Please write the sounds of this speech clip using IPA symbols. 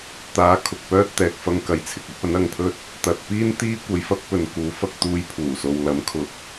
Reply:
t̪aː˨˥ kʰʊ˨k̚pœː˥t̚ t̪ɛː˨k̚fɐ˧ŋkɐ˨˧jt͡sʰɪ˨k̚ ɐ˥p̚ɐ˨˥nɐ˧ŋpʰɵ˥t̚ | t̪ɐ˨t̚piː˥n t̪iː˥ kʷɐ˧jfɐ˥k̚ pɵ˨˧nkuː˨˥ fɐ˧k̚t̪uː˧j pʰuː˨˩so˨w lɐ˨˥mkʰʊ˨˥k̚

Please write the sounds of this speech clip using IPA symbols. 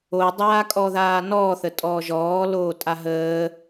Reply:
odˤaː kʼɔðaːnɔːθə tʼɔːʒɔː loːtʼaɦəː

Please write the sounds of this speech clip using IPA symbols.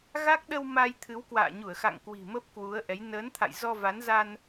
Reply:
ɣa˦˥k̚ɗə˧w ma˧j t̪ʰɨ˨˦wkwa̰ː˧˨ɲu˧˩ə̯xa̰˧˨ŋ kwi̤˨˩mə˦˥p̚ kwu˨˦ə̯ʔɛ˨˦j nəː˨˦nt̪ʰa̰˧˨j zɔ˧va˨˦nza˧n

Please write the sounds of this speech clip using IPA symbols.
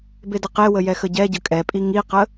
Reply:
bedəqewə jɛxəɟɛɟə kʼɛpʼi ŋiqə

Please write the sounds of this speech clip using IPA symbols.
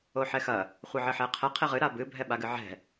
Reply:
oħɛxɐ | χʷɨʕɘħɛqʰɛ qʰeʁɨ ɾabɨ bʱɛɓaɡɨʕɛ̤

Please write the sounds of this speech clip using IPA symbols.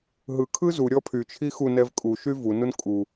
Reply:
ɦɯ kʰɯzu ɾʲɔpʰyt͡ʃʰi xunɛv kʼu ʃyvu nunkʼu

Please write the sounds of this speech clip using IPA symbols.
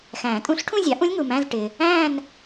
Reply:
xæ̃˨˩˦ tʼũ˧˥ɬʈʰũ˥˧zʲɑ˩˥ʔũ˧˥lʲ ŋu˨mæ̃˧˥˧z ʈɪ˨ | æ̃˥˧n

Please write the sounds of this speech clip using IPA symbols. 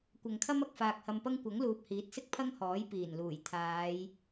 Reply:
kʷɐ˨ŋkʰɐ˥m ɐ˧k̚faː˨k̚hɐ˧mpɐ˥ŋ kʷɐ˨˥ŋluː˨p̚hiː˨˥t̚sɪ˥k̚ pʰɐ˥ŋhɔː˨˥j piː˨˩nluː˨˩j t̪ʰaː˨˧j

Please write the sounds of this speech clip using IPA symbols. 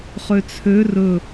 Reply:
χøt͡sʰø rɵ

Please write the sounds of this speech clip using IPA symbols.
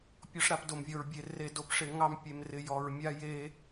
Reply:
pʲɔ˦ʂɾa˦pdo˧mvʲɔ˧ɹ bʲe˧ re˧do˧pʂɪ˧ ŋɑ˦mpʲe˧mrɪ˧ jɔ˧ɹ mʲa˦je˦

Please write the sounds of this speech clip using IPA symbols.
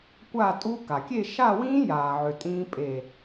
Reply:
kʷaː˥˨tʼu˦˥ ka˩kʲe˥˨ ʃa˥˨wĩː˦˥jaː˩ʕø˩ tʼĩː˦˥pʼe˧˩

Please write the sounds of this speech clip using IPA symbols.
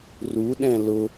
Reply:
ruɗɛ̃ lʊ

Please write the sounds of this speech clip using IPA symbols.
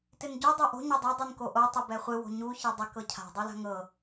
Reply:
tɪnɟo dˤoʔo̤ ɲɛdˤɤ dˤinkoʔo tˤɪbɛχʷɪ wo̤ɲu çɛdˤɪ kɤcʰa̤ dˤula̤ŋɤ

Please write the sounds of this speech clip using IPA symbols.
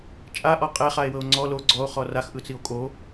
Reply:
t͡ʃʼaʔɔ qʼeχae̯wɤo̯ ŋ͡ǀɔ lo ɡ͡ǀɔo̯χɔ raxʔɯt͡sio̯ kʼo

